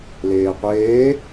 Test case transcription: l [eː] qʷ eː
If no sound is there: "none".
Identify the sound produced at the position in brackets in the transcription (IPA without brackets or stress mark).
eː